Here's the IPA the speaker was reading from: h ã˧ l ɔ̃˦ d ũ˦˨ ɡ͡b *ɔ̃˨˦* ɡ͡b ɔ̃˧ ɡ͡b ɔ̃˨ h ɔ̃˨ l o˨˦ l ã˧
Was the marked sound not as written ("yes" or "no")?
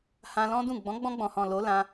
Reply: no